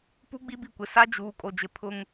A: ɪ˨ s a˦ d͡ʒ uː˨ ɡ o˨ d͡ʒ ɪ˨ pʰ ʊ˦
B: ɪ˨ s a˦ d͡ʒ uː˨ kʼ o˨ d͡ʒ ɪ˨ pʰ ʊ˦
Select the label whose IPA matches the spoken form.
B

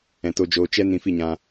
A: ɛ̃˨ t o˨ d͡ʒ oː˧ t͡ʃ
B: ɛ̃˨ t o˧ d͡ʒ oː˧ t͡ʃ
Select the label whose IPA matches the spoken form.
B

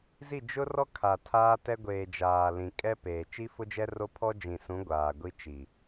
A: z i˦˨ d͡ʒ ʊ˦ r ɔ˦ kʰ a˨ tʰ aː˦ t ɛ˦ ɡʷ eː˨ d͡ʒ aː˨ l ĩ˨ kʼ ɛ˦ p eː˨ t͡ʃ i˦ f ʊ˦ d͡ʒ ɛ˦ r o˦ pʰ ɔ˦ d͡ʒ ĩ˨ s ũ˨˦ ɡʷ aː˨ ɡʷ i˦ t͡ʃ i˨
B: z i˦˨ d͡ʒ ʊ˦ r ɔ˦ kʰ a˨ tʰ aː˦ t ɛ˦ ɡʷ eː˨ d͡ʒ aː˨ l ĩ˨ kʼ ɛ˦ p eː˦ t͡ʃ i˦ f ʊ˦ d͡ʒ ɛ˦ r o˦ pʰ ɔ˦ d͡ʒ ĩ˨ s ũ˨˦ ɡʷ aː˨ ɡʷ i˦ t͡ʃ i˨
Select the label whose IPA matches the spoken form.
A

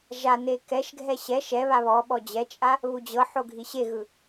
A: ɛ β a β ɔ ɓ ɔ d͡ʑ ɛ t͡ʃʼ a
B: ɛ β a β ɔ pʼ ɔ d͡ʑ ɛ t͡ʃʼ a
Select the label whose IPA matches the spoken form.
A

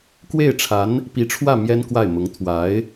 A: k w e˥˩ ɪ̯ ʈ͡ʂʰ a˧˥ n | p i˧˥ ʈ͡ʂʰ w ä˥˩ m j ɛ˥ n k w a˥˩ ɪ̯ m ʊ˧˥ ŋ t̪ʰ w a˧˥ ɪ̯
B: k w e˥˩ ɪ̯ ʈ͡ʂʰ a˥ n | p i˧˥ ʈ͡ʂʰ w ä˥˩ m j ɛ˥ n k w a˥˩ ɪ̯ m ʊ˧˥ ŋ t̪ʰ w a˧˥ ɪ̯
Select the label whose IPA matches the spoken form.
A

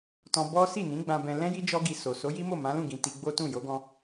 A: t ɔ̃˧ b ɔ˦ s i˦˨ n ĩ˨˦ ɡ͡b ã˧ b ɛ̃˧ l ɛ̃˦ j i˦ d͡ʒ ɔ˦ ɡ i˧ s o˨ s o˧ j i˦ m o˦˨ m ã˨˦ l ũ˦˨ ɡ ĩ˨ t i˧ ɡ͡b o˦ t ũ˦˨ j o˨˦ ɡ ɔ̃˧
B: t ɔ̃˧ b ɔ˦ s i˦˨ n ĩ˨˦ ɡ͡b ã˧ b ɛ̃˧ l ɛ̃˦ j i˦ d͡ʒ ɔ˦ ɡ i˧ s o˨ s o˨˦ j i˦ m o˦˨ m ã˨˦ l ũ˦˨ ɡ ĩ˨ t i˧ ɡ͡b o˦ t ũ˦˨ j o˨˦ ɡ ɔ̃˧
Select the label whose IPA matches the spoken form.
B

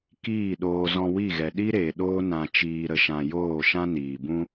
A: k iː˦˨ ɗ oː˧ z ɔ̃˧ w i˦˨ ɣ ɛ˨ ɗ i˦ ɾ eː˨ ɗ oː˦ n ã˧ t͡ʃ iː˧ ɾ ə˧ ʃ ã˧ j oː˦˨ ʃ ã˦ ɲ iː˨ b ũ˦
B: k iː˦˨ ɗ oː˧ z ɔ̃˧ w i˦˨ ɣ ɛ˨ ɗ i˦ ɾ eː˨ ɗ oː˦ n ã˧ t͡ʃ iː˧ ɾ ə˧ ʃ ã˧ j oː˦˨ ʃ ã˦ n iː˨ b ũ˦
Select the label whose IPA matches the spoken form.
B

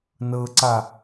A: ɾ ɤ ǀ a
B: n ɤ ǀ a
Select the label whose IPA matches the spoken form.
B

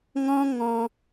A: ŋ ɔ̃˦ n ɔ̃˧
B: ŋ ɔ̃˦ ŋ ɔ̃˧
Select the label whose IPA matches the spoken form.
B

